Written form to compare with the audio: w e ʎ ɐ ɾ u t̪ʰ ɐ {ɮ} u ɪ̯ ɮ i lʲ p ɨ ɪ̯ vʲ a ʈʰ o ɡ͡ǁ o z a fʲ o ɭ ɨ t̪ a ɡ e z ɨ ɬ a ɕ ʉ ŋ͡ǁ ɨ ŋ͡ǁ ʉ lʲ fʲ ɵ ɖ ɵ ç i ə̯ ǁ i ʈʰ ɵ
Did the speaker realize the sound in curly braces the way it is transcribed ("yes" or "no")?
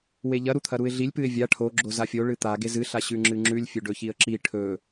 no